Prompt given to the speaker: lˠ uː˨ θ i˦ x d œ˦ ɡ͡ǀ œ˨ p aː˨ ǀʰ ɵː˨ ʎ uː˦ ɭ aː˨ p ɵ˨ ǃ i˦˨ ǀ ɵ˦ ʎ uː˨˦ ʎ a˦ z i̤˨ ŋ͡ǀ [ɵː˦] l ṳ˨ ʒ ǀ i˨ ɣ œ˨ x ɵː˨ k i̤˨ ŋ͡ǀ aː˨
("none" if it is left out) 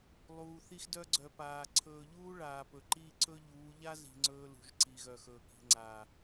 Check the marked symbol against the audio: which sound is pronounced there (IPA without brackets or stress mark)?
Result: ɵː˦